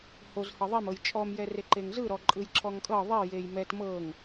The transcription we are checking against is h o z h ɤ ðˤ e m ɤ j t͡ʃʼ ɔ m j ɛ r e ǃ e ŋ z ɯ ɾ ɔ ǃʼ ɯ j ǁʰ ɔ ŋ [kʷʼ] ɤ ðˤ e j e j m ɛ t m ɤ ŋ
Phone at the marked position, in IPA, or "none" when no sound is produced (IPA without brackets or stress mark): kʼ